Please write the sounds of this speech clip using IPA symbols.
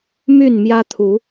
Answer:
my˥˨n mjä˦t̪ʰu˨˦

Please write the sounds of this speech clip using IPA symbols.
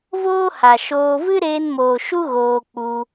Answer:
voː˦ha˨ʃoː˧ vɨ˦ɾeː˧nmoː˨ ʃu˦ɣoː˧k͡pu˧

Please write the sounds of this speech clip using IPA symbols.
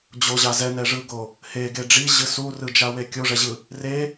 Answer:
d͡ʑoʑa zɛnɛʐɯɡo | heɡe ɖ͡ʐiʑɯ surɯd͡ʒawe kʲoʐɛʑɯ | re

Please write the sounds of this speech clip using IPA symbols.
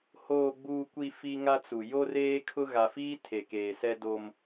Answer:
hoː˨ɡ͡buː˨kʷi˨ fi˦ŋa˦t͡su˨ jo˦reː˦kʰʊ˦ ɣa˨fiː˦ tʰe˨keː˨ sɛ˦do˦m

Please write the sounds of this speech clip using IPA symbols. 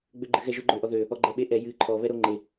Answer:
ɡ͡bøɡ͡ǃɨɣɛʒʊ ɡ͡ǃøʔɔðø | ɔɡ͡ǃɛɓeʔɛ jɨ ǃʰɔ βɛɾoŋ͡ǃe

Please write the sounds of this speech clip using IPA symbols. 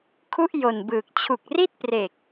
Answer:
kʰu˥˩ʔjo˨˩nbɯː˨˩k̚ t͡ɕʰu˨˩k̚ri˥˩t̚pre˨˩k̚

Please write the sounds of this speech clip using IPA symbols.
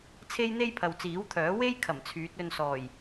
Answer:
t͡sʰe˥jn̪e˥j pʰɐ˨wt͡siː˨˥wt̪ʰœː˨˥ we˥j kʰɐ˨˩mt͡sʰyː˨˥t̚ ɵ˧nsɔː˨˩j

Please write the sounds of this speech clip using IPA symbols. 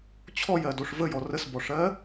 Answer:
t͡ɕʰɔjɜdoʂ vəjɔ rəsbɔʂɜ

